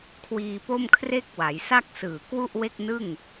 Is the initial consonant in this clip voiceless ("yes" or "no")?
yes